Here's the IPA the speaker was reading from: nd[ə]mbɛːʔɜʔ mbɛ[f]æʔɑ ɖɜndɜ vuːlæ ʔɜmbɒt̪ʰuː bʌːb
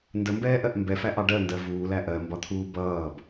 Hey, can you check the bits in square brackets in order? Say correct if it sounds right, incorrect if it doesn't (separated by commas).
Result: correct, correct